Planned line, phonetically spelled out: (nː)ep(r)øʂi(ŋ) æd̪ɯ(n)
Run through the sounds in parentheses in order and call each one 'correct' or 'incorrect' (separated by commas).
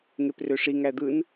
incorrect, correct, correct, correct